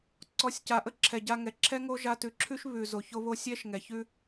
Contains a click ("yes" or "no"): yes